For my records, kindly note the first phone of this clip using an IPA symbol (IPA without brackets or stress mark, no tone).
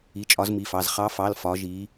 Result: i